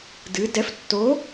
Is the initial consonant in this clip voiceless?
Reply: no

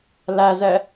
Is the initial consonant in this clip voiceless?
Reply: no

